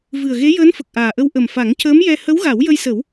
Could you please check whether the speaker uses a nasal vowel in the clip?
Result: no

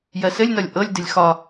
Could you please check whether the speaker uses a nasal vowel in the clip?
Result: no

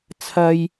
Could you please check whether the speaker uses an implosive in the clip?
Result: no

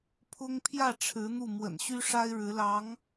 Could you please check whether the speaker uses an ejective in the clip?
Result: no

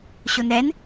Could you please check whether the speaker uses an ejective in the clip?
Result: no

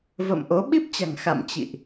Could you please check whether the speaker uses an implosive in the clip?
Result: yes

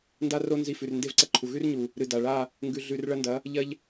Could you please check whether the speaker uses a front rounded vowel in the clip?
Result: no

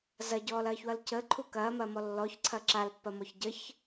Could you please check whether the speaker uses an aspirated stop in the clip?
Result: yes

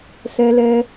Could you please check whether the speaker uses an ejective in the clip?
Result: no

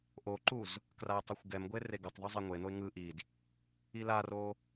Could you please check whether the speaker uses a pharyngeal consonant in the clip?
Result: no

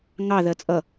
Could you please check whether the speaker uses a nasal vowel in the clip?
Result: no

